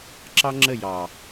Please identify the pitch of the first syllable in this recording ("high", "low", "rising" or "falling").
high